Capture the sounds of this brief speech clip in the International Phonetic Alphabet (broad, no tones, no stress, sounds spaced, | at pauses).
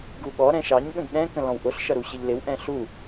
ɡ u ɠ ɔ ɾ ɛ̃ ʃ ɑ ɲ ɠ ə̃ ɡ ɗ ɛ̃ k ə̃ l ɔ̃ w ʔ ʊ ɬ ʃ ʌ ɾ u ɕ ɪ ʎ l ɪ w ʔ ɛ̃ ɬ u